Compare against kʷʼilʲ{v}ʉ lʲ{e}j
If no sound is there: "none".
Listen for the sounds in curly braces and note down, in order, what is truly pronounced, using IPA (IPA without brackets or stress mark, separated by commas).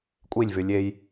v, e